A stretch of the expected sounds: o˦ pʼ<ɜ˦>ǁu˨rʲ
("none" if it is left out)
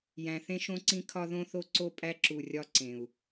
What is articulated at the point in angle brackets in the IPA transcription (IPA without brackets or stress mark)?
æ˦